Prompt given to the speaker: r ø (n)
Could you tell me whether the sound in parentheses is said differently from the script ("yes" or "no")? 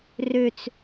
yes